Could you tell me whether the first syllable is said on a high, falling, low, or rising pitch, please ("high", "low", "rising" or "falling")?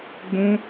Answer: high